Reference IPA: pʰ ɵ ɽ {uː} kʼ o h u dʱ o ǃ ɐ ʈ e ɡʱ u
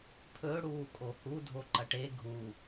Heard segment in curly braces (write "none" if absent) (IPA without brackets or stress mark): uː